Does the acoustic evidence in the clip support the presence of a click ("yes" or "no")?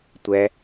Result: no